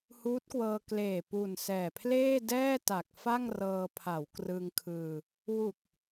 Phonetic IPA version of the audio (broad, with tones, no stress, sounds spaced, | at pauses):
h uː˦˥ t̚ k w ɤː˧ k l eː˨˩ p u˨˩ n s ɛː˨˩ pʰ l eː˥˩ d ɛː˥˩ t a˨˩ k̚ f a˥˩ ŋ r ɤː˧ pʰ a˩˦ w k r ɯ˧ ŋ kʰ ɯː˧ | w u˨˩ k̚